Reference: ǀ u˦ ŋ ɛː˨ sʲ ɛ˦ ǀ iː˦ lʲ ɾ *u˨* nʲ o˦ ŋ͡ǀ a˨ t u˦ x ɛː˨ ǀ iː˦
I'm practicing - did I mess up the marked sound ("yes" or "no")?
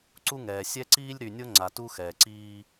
yes